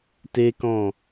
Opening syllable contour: high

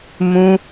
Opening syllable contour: high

